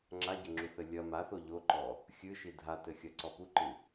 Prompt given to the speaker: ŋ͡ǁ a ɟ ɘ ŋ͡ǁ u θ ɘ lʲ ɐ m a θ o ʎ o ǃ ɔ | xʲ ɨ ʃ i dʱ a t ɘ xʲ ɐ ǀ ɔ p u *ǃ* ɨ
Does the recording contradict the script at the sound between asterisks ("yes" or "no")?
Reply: no